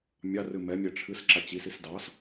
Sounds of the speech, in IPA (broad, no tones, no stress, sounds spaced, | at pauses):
mʲ ɑ r ɨ m ɛ mʲ ɛ ʈ͡ʂʰ ɨ s ǁ a t͡ɕ i s i s d ɑ s